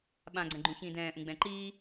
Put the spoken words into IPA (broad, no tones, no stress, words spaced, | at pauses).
ɓãɡ͡ǀɛ̃ɡ͡ǃũ çĩːdɛ̃ːʔũ ɡ͡bɛ̃ǃiː